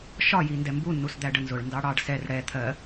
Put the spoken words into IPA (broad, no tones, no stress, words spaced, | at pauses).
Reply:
ʃɒji ndɛmbunːus d̪æɖənzʊɭ ndɑɽɑɖ sɛr ɽɛ t̪ʰɜ